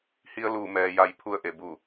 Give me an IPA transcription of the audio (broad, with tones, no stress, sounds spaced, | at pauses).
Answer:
h i˧ ə̯ l uː˧˩ m ɛː˩ j a˩˧ j pʰ u˧ ə̯ ʔ e˩ b u˧˩